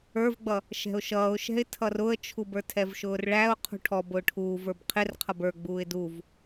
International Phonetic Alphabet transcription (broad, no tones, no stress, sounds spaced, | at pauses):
ə˞ v ɡ͡b ʌ | ʃ ɛ̤ ʊ̯ ʃ ʌː ʊ̯ ʃ ɛ̤ ɪ̯ tʰ ʌ r ʊ ə̯ t͡ʃʰ u b ə˞ tʰ ɛ v ʃ ʊː r ɭ æ ʊ̯ qʰ ṳ ʈʰ ɔ b ʊː ʈʰ uː v ə˞ b qʰ ɪ r qʰ ʌ b ə˞ ɡ͡b uː ɪ̯ d u v